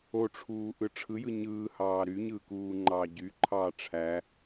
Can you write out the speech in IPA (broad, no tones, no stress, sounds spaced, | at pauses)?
o ʈ͡ʂʰ uː ʔ ɯ ʈ͡ʂʰ ɯ j ɯ ɲ ɯː h ɑː ɾ y ɲ ɯː k uː ŋ͡ǃ ɑː ɟ y ǃʰ ɑː ʈ͡ʂʰ æ